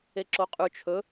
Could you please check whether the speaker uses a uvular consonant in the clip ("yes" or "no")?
yes